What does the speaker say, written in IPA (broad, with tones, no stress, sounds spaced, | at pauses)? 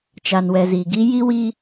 t͡ʃ a˨ n w ɛ˨ z iː˨ ɡ i˦ j i˦ w i˦